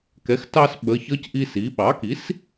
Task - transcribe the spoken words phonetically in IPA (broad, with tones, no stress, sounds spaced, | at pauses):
k ɛ˩˥ x t ɑ˦ s ɓ ə˩˧˩ ç ʌ˦ c ʔ i˦ s i˩˥ ɓ ɑ˩˥ k i˩˥ s